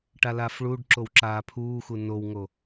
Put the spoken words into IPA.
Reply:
ʈ a l aː f ɭ uː ɖ ǁ o w ǁ aː pʰ uː x u n o w ŋ o

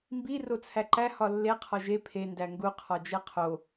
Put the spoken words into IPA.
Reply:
m b i r o t͡sʰ æ ǃ æ h ɒ lː e qʰ ɒ ʒ e pʰ e n d æ ŋ ɡ u qʰ ɒ d͡ʒ e qʰ o

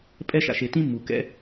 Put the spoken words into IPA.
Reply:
pʼ ɛ˦ ʃ a̰˧ ʃ e˧ t ĩ˦ mː u˨ k ɛ̰˧

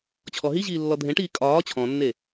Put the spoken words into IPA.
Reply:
t͡ɕʰ ɔ ɦ i ʑ iː lː ɔ dʱ ẽ ʈ iː kʼ ɒː t͡ɕʰ ɔ̃ nː e

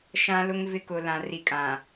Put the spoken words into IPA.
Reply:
ʃ ã˦ l ʊ˦ ŋ v ɪ˦ k ʊ˨ l ã˨ r i˨ kʼ ã˨

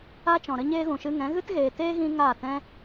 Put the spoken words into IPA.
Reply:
a˦ t͡ʃ ɔ̃˨ ɾ ə˦ ɲ eː˦ ɣ ũ˨ ʃ ɨ˧ ŋ ɛ̃˨˦ ɣ ɨ˦ t ɣ eː˨ t eː˦ ɣ ĩ˧ ŋ aː˦˨ t ɛ̃˦

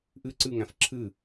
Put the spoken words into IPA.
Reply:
ʔ ɨ ǀ ɨ ŋ æ̃ f ǁʰ ɨ

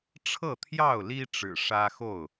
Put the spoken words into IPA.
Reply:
ʈ͡ʂʰ ɤ˥˨ t̪ʰ j ɑ˥˨ ʊ̯ l i˦ ʈ͡ʂ ɻ̩˨˩ ʂ ä˦ x o˥˨ ʊ̯

